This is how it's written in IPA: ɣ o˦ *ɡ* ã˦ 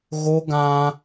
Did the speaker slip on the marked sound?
no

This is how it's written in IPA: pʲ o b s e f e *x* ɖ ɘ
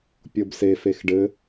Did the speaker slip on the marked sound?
no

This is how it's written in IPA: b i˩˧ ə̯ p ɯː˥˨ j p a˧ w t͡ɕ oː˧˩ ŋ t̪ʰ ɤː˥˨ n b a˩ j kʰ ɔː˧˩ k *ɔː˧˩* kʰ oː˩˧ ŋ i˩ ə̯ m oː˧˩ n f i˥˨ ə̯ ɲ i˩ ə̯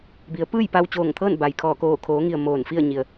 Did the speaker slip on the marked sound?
yes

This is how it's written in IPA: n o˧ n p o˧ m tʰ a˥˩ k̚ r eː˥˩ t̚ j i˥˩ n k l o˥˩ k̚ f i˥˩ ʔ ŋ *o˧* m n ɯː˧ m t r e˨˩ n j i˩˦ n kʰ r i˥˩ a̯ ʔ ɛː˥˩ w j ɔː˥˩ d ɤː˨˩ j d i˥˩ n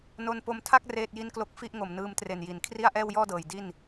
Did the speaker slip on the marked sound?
yes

